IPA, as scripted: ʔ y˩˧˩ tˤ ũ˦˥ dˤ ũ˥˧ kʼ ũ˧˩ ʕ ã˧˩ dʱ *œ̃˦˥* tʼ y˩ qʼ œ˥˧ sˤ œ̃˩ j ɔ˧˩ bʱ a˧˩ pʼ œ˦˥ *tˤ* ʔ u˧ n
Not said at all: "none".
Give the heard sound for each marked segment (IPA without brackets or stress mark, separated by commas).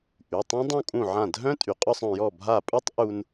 œ̃˦˥, tˤ